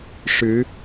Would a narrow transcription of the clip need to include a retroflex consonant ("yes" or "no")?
yes